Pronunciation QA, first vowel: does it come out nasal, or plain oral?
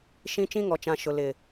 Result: nasal